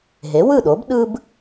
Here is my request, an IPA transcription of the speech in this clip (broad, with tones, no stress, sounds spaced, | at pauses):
ɦ e˩˥ w ɯ˥˩ ɗ o˩˥ b ɗ ɯ˥ b